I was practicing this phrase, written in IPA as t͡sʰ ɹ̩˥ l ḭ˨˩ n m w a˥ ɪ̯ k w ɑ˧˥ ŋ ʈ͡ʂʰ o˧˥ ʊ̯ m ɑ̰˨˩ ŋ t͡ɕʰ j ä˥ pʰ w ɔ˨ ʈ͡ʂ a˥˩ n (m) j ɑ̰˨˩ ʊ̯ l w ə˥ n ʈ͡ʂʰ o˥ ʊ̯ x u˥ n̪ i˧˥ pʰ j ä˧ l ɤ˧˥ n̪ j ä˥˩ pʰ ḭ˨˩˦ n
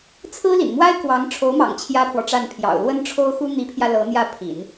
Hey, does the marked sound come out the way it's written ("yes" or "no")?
no